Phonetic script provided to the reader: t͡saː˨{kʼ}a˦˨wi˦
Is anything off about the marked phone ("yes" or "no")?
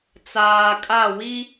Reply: no